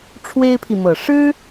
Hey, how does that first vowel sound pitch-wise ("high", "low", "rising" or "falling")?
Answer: high